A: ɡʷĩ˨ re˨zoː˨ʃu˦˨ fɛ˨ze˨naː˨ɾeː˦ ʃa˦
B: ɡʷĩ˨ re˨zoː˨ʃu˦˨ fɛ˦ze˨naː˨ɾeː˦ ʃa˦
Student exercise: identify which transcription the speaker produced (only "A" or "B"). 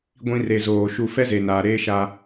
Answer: B